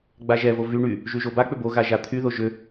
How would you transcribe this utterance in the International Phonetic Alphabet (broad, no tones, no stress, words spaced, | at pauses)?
ɡ͡baʒɛvo vy ɳy | ʒyʒobak͡pʏ boɣa ʒat̪ʰyðo ʒʏ